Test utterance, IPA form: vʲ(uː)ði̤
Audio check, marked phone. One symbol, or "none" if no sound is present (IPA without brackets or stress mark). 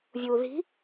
uː